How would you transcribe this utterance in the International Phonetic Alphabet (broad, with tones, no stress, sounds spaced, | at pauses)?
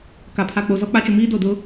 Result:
k a˨ pʰ a˨ k͡p o˨ z ɔ˨˦ k͡p a˨˦ t͡ʃ ʊ˨ m iː˦ d o˦˨ d ʊ˦